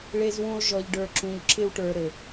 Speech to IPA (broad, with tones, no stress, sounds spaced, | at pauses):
ɭ e˧ z w ũ˧ lˠ ʒ ɔ˨ ʎ ɖ ə˞˨ ǁ ũ˨ ʎ ǁ ɪ˧ w ʈ ə˞˨ ɾ ɘ˨